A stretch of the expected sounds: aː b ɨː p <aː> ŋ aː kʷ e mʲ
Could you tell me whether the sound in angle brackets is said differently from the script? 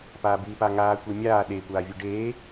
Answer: yes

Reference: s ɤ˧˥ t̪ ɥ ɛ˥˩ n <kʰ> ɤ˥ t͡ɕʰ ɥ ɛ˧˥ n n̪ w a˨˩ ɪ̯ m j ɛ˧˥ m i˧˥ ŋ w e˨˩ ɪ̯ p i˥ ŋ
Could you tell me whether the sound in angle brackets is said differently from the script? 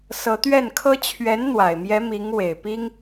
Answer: no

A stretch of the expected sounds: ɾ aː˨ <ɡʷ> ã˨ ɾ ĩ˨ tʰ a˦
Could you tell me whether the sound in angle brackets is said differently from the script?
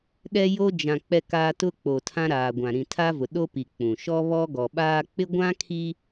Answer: no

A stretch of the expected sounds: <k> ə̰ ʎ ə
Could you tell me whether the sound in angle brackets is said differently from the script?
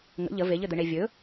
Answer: yes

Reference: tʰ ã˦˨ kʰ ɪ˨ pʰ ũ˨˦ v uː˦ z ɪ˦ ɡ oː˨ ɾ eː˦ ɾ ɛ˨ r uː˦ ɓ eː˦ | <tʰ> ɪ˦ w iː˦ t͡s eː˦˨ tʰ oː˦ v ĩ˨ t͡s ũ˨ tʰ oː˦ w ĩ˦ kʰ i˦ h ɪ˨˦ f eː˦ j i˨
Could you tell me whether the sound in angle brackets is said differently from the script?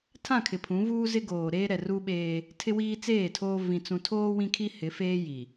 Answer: no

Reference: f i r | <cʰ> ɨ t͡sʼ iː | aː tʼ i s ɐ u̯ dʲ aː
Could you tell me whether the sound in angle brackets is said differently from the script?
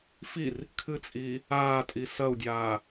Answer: yes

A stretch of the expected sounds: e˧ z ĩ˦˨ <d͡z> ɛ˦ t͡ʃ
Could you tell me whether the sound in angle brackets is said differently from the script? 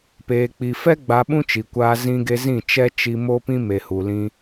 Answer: yes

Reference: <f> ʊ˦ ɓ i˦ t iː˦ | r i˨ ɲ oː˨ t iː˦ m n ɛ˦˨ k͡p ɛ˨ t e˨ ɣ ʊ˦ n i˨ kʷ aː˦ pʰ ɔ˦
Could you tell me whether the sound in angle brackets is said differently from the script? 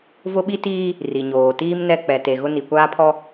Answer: yes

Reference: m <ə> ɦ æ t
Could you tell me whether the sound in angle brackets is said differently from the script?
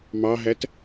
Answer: yes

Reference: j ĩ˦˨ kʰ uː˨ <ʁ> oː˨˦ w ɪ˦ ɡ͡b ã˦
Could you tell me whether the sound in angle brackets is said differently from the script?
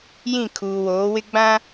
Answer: yes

